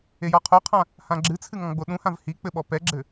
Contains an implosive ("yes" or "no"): yes